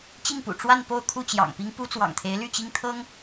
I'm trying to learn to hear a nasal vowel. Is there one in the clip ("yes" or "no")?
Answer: no